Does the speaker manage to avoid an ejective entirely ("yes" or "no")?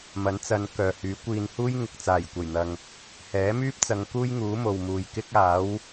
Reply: yes